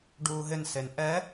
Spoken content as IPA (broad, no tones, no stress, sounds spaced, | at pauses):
ɖ uː ɦ ɪ n s e n ʔ ɛ